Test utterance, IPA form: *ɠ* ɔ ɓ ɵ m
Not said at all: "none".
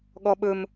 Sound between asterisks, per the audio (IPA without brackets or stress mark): ɠ